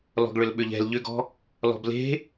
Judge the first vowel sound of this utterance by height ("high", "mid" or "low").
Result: mid